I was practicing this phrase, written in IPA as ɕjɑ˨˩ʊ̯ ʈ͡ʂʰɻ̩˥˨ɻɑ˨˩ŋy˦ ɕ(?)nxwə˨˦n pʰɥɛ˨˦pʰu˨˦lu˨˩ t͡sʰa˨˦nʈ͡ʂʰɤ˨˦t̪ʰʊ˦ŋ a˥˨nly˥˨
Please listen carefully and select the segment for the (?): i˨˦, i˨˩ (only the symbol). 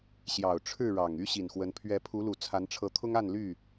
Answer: i˨˩